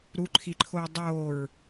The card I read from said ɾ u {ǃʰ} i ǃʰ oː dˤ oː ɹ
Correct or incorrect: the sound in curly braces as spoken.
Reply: correct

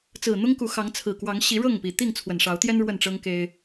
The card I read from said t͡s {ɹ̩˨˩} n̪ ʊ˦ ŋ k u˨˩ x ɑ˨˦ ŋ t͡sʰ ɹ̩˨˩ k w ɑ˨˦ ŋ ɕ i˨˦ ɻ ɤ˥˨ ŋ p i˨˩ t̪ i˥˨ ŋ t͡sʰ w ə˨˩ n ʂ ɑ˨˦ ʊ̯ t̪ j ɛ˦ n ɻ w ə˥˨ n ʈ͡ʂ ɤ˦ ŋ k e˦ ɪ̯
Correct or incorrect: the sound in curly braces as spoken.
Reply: correct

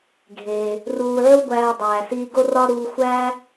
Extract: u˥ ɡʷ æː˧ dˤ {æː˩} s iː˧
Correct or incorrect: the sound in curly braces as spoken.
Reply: correct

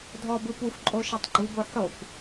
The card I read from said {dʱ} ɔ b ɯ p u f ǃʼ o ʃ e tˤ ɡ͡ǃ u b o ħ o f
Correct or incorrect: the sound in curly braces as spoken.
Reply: correct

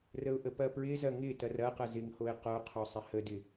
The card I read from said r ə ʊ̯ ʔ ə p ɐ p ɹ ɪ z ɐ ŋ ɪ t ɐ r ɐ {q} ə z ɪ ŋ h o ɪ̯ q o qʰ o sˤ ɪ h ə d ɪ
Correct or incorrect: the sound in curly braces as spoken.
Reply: correct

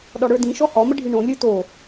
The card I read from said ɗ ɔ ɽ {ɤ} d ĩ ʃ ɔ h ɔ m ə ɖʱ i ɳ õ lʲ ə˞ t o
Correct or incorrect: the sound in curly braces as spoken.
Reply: incorrect: ə˞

